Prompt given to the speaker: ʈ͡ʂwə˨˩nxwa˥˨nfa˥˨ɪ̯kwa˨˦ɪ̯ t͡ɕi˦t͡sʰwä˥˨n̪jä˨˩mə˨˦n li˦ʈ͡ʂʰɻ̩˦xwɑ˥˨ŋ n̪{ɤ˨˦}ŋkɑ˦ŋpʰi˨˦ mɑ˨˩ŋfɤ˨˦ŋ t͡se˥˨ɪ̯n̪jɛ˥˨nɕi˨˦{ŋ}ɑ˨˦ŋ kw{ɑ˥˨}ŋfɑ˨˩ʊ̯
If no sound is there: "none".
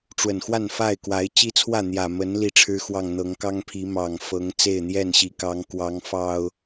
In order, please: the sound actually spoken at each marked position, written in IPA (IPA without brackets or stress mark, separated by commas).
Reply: ɤ˨˦, k, ɑ˨˦